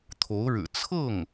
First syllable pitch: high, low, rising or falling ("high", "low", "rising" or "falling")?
rising